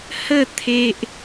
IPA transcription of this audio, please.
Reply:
h ə˥˧ t̪ʰ e˦ ʔ

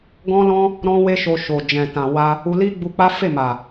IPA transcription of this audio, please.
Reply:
ɡ ɔ̃˦ l ɔ̃˦ | ɾ ɔ̃˦ w e˦ ʃ o˧ ʃ o˨ d͡ʒ ɛ̃˨ t ã˨ w a˧ | u˧ l i˦ ɡ͡b u˧ k͡p a˦ f e˦˨ m a˨

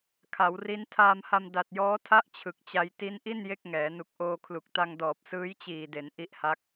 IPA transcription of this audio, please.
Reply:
kʰ a˩˦ w r i˦˥ n tʰ aː˧ m h a˧ m d a˨˩ t̚ j ɔː˦˥ tʰ a˥˩ ʔ t͡ɕʰ ɯ˨˩ k̚ t͡ɕ a˧ j t i˦˥ n ʔ i˥˩ n j e˥˩ k̚ ŋ ɛː˩˦ n u˨˩ k̚ ʔ oː˧ kʰ l u˨˩ k̚ t a˧ ŋ d ɔː˨˩ p̚ s ɯː˦˥ j t͡ɕ iː˨˩ d e˩˦ n ʔ i˦˥ ʔ h a˦˥ k̚

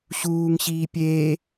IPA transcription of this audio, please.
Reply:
ɕ uː ŋ ɕ iː pʲ eː

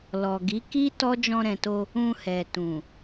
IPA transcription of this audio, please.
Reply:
l ɔ˨ ɡ i˨˦ k i˦ t ɔ˦ d͡ʒ ɔ̃˧ ɾ ɛ̃˨ t o˧ | ũ˧ h ɛ˨ t ũ˨

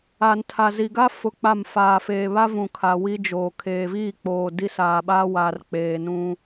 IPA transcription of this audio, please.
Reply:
a˨ n tʰ a˨ z i˨ ɡ a˦ f ʊ˦ k͡p a˦˨ m f aː˨ f eː˨ β a˦ v ũ˨ kʰ a˨ w i˦ d͡ʒ oː˨ kʰ eː˨ v iː˦˨ k͡p oː˨ d i˦ s aː˨ ɓ aː˦ w aː˨ r k͡p eː˨ n ũ˦

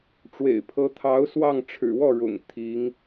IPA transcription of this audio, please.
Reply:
ʈ͡ʂ w ḛ˨˩ ɪ̯ pʰ ɤ˧˥ t̪ʰ ɑ˧˥ ʊ̯ s w ɑ˥˩ ŋ ʈ͡ʂʰ ɻ̩˨˩ w ɔ˥˩ ɻ ʊ̰˨˩ ŋ t̪ʰ i˧˥ ŋ

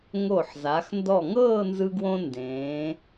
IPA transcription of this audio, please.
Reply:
ŋ o˧˩ ħ z a˩˧ x n d ɔ˧˩ ŋ ɤː˥˧ n z ɯ˧ ɡ w õ˧ n d ẽː˩˧

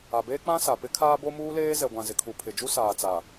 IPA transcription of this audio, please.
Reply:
a˨ b eː˦ k͡p ã˦ s a˨ p ɪ˦ kʰ aː˦ b o˦ m uː˦ l eː˦ z ɛ˨ ɡʷ ã˨ z ɪ˨ kʰ u˨ pʰ ɪ˨ d͡ʒ u˦ s aː˨ t͡s a˨

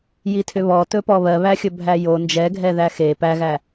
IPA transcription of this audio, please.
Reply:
j i tʰ ʏ β ɔ t ɵ p ɔ β ɜ β æ xʲ ɵ bʱ æ j o n d͡ʒ ɛ ɡʱ ɛ ð æ x e p æ ɣ æ

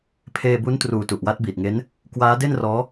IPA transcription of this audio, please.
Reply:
pʰ eː˧ b u˦˥ n t r uː˨˩ t u˨˩ ʔ w a˦˥ t̚ b iː˨˩ t̚ ŋ e˦˥ n | k w aː˦˥ d e˥˩ n r ɔː˦˥

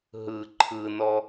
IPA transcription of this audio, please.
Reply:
ɦ ɯ ǃʰ ɯ n ɔ

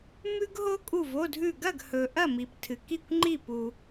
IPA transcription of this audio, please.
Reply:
m ʉ˥ ɡ ɦ o˥ kʼ u˥˨ v o˧˥˧ dʱ ʉ˥˨ ɡ ɐ˥˨ ɡ h ɵ˨ ʔ ɐ˥˨ m i˨ p tʰ ɨ˨ k i˥˨ kʷ ŋ͡ǃ i˥˨ p u˨

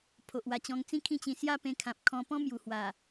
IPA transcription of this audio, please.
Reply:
pʰ o˨ ʔ w a˨˩ t͡ɕ ɔ̃˧ ŋ t͡s ĩ˦ kʰ ĩ˥˧ t͡ɕ ĩ˧ s j a˦ p ẽ˧ kʰ ã˨ p̚ kʰ ɔ̃˧ p ɔ̃˦ m j u˨˩ h w a˨˩

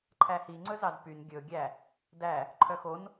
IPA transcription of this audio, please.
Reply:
ǃʰ æ h i ŋ͡ǀ ɵ z ɑ z p y n ɡʲ ɵ ɡʲ æ | d æ | ǃʰ œ x o n

